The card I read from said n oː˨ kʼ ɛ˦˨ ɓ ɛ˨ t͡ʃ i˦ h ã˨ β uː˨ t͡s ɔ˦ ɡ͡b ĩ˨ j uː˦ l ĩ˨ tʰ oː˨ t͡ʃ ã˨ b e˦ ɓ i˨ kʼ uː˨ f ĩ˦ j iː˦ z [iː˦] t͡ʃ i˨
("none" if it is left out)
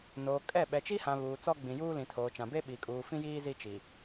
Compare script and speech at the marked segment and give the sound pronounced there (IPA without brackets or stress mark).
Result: i˦